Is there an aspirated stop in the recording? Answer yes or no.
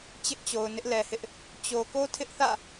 yes